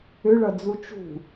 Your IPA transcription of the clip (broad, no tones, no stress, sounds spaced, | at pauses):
ʏ ɭ ʌ d͡z u t͡ʃ ṳ